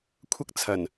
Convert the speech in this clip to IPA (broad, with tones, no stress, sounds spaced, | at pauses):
kʷʰ ɐ˥ k̚ t͡sʰ ɐ˨˩ n